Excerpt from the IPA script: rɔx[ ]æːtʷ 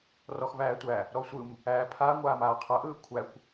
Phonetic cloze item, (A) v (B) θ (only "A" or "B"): A